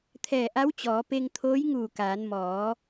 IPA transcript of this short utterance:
t̪ʰ ɛː˧˩ ʔ a˧˥ w t͡ɕ ɔː˩˧ p e˧ ŋ t̪ʰ oː˧˥ j ŋ uː˧˩ k aː˩˧ n m ɔː˩˧

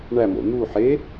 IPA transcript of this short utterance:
ɳ æ m o̰ n̪ u ħ e

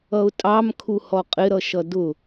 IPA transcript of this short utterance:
ʌ ʊ̯ tʼ ɑ m kʰ u h ɔ qʼ ɪ ɾ ʌ ʃ ʌ d ʊ

